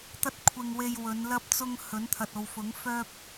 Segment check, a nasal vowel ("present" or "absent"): absent